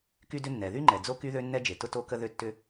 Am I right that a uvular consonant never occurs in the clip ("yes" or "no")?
yes